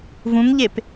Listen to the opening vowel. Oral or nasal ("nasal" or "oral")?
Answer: nasal